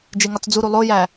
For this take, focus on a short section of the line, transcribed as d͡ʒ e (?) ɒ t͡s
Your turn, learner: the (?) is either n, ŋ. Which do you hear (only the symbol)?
ŋ